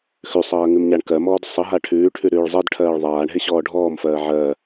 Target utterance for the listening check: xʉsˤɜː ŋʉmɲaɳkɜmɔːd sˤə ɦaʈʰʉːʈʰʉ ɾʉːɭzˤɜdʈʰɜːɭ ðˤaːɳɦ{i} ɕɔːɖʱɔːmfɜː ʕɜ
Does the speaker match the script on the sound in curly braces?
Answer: no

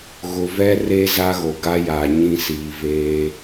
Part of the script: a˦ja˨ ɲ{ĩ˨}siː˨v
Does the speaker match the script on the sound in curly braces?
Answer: no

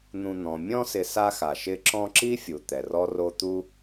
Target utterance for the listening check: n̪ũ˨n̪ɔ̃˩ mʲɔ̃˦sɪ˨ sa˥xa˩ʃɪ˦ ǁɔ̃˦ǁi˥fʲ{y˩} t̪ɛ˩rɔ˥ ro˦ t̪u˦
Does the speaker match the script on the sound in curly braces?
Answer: no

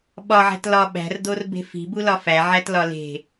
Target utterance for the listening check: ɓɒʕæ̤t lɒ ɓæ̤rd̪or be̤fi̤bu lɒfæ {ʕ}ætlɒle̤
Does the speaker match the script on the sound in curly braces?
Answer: yes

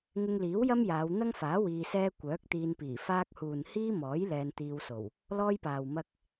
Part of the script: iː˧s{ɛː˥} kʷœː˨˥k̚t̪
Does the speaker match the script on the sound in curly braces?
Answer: yes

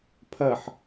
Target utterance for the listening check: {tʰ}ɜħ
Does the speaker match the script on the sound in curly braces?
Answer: no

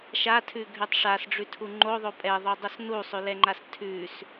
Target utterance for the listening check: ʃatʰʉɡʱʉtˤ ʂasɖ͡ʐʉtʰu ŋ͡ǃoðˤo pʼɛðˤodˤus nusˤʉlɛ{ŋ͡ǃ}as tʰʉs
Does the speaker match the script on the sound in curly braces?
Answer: yes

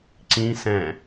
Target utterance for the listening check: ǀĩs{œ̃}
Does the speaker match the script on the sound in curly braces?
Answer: no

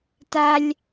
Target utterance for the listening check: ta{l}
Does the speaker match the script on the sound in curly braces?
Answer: no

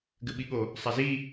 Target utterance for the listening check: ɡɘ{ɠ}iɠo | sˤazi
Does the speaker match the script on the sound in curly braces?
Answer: no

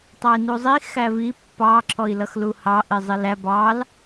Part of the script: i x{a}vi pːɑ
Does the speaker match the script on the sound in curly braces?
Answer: no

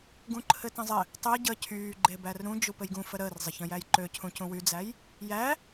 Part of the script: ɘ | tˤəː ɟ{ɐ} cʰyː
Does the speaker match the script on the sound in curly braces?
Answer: no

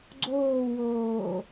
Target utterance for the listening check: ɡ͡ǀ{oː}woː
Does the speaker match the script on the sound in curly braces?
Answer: yes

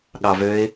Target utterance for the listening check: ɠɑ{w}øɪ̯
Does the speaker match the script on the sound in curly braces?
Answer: no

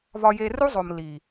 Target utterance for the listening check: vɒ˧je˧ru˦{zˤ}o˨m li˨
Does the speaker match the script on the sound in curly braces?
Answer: yes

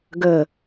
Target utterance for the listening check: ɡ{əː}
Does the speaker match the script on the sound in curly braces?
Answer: yes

